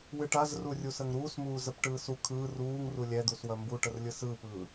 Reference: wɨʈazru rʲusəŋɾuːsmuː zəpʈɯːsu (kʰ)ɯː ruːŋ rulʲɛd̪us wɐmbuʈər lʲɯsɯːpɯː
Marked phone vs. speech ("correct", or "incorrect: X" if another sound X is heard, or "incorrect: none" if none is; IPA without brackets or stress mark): correct